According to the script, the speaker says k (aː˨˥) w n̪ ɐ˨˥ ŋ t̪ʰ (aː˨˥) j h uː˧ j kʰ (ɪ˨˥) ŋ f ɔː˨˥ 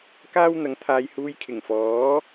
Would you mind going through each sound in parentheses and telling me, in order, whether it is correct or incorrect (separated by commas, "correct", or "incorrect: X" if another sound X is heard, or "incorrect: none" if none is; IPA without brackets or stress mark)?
incorrect: aː˥, incorrect: aː˨˧, incorrect: ɪ˨˩